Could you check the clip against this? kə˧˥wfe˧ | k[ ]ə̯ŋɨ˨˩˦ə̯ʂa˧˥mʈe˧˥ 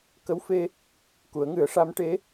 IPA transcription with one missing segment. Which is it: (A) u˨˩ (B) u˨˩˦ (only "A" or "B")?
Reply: B